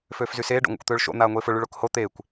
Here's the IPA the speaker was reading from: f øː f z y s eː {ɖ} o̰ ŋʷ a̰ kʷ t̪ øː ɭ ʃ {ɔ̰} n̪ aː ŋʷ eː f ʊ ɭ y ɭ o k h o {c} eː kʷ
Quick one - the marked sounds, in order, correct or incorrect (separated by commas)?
correct, incorrect, incorrect